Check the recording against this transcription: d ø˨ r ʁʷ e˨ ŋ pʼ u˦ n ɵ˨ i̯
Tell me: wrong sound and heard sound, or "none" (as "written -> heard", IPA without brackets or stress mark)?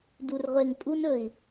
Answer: ø˨ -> u˨